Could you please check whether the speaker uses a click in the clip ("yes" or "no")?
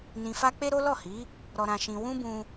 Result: no